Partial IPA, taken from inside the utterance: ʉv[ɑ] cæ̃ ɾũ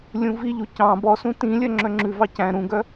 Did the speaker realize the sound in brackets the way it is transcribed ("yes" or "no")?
yes